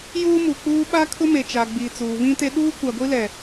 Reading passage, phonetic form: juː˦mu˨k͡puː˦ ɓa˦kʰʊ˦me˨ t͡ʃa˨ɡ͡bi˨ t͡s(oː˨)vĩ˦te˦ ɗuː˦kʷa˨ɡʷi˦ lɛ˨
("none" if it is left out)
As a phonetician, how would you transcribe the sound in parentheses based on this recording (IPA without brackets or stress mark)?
uː˨